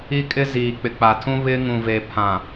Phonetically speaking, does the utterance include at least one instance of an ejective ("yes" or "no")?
yes